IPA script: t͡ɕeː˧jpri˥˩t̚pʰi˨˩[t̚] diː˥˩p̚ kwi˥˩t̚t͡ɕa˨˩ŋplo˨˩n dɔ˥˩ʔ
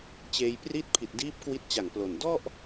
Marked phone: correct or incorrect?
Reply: correct